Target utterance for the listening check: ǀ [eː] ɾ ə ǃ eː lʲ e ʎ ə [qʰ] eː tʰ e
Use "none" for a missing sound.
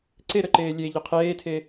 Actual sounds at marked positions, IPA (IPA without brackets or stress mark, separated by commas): e, qʰ